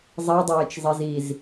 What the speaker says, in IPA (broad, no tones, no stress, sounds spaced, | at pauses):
zˤ i dˤ eː t͡ʃ zˤ i z i z